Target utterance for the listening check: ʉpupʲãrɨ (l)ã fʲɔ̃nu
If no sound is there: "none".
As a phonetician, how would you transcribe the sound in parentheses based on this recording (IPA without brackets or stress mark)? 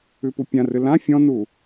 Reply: l